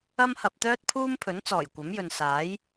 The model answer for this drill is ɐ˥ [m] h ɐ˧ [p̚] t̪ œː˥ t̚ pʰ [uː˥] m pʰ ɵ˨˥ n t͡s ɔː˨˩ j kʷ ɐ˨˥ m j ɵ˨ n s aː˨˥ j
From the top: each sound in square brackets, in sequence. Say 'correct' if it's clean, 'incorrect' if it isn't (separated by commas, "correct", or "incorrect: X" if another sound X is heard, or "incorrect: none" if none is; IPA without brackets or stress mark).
correct, correct, correct